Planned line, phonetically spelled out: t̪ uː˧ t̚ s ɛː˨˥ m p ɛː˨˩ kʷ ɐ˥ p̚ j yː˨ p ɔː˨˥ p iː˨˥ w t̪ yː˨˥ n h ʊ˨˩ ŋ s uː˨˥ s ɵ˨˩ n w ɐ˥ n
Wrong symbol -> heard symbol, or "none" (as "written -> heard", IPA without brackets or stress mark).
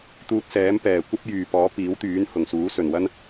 none